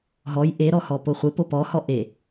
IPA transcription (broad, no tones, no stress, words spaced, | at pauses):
ɦɔj ʔeɾɔhɔ poχʷe popɔhɔ ʔe